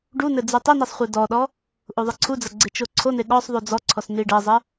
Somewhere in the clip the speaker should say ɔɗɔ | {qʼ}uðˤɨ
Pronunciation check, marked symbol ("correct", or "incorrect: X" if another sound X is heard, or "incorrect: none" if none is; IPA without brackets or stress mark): incorrect: ʔ